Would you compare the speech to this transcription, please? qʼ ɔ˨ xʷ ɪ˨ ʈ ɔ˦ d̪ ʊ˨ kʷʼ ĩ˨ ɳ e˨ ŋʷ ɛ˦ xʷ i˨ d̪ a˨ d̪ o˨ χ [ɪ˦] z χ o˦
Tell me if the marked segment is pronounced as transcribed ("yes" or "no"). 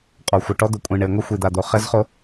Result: no